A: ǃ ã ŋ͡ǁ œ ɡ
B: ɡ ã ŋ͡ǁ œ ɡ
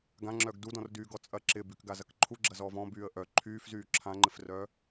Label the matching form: B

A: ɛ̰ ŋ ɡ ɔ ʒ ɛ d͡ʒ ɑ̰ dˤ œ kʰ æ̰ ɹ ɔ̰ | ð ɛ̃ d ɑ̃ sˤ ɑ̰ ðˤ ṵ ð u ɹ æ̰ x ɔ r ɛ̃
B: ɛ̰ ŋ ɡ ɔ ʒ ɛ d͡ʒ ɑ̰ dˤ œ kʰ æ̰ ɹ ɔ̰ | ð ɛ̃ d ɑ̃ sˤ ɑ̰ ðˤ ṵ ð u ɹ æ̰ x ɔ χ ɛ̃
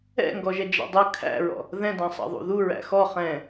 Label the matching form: B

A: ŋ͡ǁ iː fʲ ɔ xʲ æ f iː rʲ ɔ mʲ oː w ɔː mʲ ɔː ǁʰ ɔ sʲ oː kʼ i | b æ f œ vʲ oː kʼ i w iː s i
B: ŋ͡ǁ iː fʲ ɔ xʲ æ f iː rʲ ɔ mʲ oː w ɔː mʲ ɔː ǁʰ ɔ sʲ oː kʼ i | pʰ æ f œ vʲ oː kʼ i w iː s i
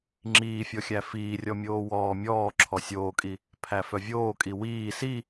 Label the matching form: B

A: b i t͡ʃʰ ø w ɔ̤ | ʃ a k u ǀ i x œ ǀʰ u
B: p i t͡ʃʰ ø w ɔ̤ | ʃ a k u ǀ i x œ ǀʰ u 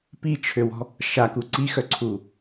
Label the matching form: B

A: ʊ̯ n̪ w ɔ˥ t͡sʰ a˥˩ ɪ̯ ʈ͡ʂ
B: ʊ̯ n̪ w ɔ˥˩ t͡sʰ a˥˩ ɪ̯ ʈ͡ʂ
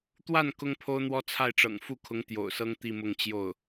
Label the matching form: A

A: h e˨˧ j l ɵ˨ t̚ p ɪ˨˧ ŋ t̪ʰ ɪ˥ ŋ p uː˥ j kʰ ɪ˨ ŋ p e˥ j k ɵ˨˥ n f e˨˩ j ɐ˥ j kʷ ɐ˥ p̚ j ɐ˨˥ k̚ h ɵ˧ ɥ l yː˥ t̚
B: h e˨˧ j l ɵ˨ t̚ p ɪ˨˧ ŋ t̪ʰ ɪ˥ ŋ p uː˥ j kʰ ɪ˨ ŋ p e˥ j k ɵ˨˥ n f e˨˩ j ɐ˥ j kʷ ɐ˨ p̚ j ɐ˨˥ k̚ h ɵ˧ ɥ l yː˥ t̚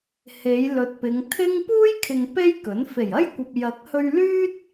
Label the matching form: B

